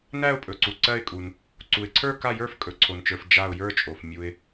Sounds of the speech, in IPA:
næ˥˧ʊ̯ pʼɵ˨ǀu˨ ǀɜ˥˧ɪ̯kʼu˨n | ǀu˨ɪ̯ǀʰə˞˥˧ ka˥˧jə˞˥˧f kʼɵ˨ǀʰo˨nt͡ʃə˞˨f d͡ʒa˥˧ʊ̯ jə˞˥˧t͡ʃʼo˨f mʲu˨ɪ̯

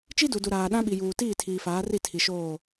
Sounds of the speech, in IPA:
t͡ʃi˦du˨du˨ɾaː˨ ɗã˦ɓi˨juː˨ tiː˦˨tʰiː˨faː˨˦ri˦˨ tʰi˨ʃoː˦˨

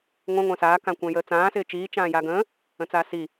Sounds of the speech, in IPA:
ŋʷə̃ ŋʷə̃ːsaː kãkʷə̃ːjəːt͡sãː sɪːt͡ʃiː t͡ʃãːjaɡə̃ː | ə̃t͡saːsi

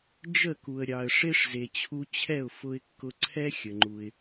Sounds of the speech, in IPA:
d͡ʒə˥˩ku˩ə̯ ɾʲɑ˩ə̯ʂe˥ʂ ze˩t͡ɕʰu˧ t͡ɕʰɛ˥˩ʊ̯fʊ˧ɪ̯kːʊ˧ ǀʰɛ˥xʲə˩ŋ͡ǃu˩ɪ̯

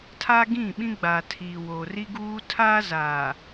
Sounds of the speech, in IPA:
tʰa˦ɡĩ˦˨ɓĩ˦ɡ͡baː˨ tʰiː˨ woː˨ri˦ɡuː˦ tʰaː˦zaː˨

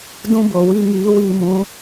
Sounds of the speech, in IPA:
dũ˦bo˨ wi˧ŋiː˨˦ wiː˧mũ˨˦

